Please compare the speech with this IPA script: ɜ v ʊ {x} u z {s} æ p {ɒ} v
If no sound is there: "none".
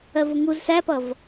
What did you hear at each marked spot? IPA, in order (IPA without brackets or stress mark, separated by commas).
ŋ, s, ʌ